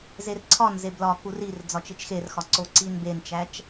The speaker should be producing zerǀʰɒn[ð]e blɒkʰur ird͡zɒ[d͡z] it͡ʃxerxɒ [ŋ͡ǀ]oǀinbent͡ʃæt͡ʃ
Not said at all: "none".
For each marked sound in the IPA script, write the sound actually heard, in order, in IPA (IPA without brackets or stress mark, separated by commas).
z, t͡ʃ, ǀ